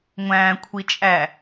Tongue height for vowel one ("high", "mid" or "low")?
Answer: low